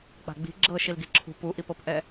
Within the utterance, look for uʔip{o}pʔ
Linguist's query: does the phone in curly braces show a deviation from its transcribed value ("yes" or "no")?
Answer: yes